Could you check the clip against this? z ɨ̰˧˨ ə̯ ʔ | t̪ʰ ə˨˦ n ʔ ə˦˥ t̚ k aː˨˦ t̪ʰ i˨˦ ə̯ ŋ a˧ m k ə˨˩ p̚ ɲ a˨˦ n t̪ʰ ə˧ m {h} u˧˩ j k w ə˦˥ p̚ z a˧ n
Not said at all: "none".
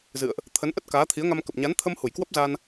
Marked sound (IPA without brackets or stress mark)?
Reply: h